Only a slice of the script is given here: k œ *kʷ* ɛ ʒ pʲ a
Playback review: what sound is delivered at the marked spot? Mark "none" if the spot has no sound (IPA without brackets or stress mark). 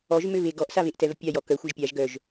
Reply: xʷ